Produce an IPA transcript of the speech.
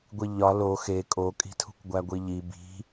ɡʷ i ʎ ɒ l o x e kʼ o kʼ i̤ tʰ ṳ kʷ ɡʷ æ ɡʷ i ʎ i b i̤

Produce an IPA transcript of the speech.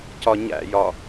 c ɒ ɲ æ̰ j ɒ

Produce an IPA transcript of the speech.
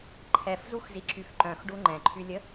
ǃʰ ɛ f z u x z i ǁ y f ǃ œ̃ x ɖ u ŋ͡ǃ ɛ̃ ǃʰ y lʲ ə

